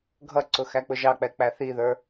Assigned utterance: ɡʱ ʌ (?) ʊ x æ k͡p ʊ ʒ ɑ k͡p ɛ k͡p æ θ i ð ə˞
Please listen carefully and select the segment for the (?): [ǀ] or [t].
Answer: ǀ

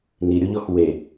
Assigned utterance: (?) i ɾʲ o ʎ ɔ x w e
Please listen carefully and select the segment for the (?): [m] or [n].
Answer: n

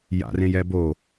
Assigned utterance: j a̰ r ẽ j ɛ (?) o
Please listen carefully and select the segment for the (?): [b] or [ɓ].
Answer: b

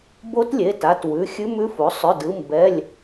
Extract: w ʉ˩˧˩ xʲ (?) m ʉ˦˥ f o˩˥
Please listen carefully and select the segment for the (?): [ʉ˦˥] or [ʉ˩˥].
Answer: ʉ˦˥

